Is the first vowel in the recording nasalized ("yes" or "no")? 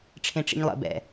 yes